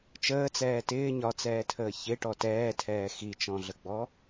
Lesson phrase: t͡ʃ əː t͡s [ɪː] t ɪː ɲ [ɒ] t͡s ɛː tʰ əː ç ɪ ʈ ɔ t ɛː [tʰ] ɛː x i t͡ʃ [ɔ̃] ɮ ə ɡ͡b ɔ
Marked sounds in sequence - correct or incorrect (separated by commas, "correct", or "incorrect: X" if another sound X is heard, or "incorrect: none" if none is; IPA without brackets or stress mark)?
incorrect: ɛː, correct, correct, correct